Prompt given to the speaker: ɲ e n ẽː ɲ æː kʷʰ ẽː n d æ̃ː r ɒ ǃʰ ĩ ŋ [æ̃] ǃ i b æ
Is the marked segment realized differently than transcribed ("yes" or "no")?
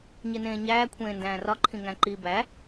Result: no